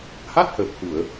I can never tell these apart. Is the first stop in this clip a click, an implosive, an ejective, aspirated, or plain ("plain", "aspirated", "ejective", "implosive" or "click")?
plain